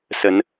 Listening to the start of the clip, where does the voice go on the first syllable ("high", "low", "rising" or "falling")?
rising